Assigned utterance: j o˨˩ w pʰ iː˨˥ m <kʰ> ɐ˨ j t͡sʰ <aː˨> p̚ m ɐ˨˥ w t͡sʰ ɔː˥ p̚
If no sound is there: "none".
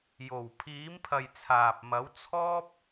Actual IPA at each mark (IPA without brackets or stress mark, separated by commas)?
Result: pʰ, aː˨